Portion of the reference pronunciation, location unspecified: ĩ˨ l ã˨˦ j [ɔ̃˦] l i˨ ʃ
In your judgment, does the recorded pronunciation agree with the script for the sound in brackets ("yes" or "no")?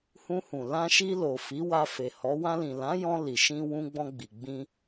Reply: no